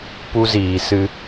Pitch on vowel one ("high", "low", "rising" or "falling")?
high